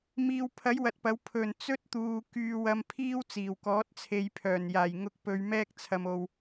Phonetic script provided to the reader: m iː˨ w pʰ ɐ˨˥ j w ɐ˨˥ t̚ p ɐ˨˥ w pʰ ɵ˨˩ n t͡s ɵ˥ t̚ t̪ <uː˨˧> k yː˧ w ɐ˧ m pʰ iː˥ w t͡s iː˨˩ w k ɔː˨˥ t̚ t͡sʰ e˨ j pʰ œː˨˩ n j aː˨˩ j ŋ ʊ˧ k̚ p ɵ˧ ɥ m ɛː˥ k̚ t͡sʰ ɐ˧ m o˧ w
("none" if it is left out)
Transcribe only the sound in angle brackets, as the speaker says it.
uː˨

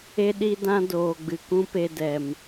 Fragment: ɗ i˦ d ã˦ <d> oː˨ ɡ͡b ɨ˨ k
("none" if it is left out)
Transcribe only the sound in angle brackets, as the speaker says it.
d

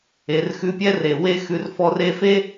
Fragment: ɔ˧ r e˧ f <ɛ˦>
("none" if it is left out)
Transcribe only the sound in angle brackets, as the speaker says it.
e˦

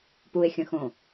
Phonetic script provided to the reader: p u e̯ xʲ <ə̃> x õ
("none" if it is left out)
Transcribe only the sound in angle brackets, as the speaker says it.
ə̃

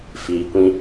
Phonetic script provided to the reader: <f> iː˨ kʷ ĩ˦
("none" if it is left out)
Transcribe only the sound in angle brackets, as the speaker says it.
f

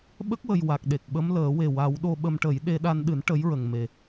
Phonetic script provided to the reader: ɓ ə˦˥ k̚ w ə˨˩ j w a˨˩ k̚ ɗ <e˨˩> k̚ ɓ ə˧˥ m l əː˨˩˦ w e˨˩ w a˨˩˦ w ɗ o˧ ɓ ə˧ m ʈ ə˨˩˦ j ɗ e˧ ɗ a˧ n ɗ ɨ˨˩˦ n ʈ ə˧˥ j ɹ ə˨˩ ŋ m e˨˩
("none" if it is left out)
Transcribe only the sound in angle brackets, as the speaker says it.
e˨˩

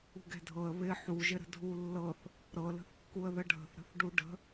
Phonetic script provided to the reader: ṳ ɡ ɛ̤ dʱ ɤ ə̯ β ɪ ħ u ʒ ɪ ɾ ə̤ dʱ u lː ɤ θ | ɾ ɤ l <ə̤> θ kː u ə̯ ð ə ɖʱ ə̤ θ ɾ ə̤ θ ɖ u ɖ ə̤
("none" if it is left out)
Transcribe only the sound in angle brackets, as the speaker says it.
ə̤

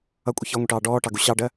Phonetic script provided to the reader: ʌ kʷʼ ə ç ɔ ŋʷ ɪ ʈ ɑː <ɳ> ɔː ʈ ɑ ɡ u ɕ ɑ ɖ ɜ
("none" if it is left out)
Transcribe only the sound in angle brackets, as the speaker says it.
ɖ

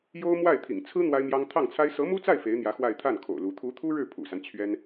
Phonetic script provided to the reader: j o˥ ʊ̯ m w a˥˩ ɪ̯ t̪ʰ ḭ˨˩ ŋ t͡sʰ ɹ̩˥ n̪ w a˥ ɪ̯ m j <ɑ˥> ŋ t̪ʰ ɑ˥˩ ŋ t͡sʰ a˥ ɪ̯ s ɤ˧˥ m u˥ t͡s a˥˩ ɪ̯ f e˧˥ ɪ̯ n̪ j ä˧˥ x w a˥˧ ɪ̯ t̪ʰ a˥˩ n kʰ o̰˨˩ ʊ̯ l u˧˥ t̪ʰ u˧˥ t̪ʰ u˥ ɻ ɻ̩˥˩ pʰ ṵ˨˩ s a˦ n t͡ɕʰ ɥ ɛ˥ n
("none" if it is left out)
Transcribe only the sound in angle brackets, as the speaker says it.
ɑ˥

